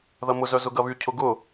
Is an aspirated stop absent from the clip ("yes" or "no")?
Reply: no